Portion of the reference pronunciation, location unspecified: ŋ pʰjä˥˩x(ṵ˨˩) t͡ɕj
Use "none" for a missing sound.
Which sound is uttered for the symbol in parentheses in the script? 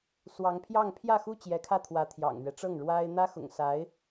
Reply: u˥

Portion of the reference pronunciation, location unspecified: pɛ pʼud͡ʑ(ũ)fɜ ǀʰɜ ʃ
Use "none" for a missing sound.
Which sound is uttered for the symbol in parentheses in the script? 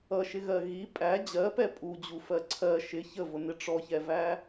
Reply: u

